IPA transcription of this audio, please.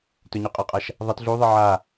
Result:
t ɵ ɲ ʉ qʼ a qʼ a ʃ | ðˤ ɐ t ɮ u ðˤ ɨ ʕ a

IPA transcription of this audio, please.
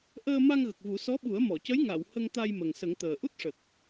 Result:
ʔ əː˧ m a˧ ŋ ɣ ə˨˩ k̚ v u˨˩˦ s ɔ˧˥ ɓ u˨˩˦ ə̯ m ɔ˨˩˨ c ə˧˥ j ŋ a˨˩˨ w h ə˧ ŋ t̪ a˧ j m ə˨˩ ŋ s ə˨˩˦ ŋ t̪ əː˨˩ ʔ u˦˥ t̚ ʂ ə˨˩ k̚

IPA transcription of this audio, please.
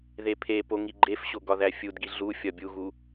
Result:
ð e pʰ e p o ŋ i ɡ͡ǃ e f ɕ o ɡ ɒ ð æ fʲ u d ɡ i ɮ u fʲ ɒ bʲ u ɣ u

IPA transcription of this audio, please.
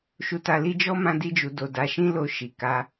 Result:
ʃ u˧ t a˧ l i˦ d͡ʒ ɔ˦ m ã˦ d i˦ d͡ʒ u˧ d o˨ d a˨˦ ʃ ĩ˦ l o˧ ʃ i˨ k a˧

